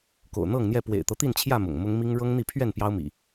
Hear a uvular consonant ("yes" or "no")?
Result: no